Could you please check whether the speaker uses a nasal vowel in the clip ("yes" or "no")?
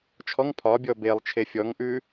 no